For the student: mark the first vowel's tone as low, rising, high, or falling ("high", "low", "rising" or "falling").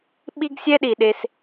high